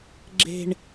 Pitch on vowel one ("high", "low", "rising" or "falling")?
high